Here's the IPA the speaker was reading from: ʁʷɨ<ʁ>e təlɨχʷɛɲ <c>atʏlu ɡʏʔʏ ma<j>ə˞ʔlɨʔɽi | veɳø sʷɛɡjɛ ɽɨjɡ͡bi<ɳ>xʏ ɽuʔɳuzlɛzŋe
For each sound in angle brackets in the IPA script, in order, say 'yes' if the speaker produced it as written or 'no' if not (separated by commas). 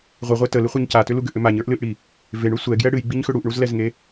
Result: no, yes, no, no